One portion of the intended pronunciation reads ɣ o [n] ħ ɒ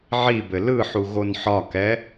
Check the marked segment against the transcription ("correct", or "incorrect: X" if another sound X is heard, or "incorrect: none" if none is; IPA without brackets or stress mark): correct